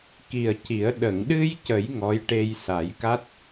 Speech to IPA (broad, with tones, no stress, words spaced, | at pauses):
ki˨˩ə̯ci˨˩˦ə̯ ɗə˨˩˨ŋɗɨ˧j cə˨˩˦j ŋɔ˧˥jʈe˧j sa˨˩˦jka˦˥t̚